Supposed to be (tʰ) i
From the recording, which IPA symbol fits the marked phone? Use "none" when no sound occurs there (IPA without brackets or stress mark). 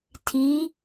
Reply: tʰ